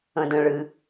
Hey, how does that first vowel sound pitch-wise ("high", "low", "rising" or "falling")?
low